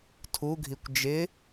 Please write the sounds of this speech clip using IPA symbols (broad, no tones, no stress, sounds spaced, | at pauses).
tʰ u ɡʱ i kʷ d͡ʒ ɪ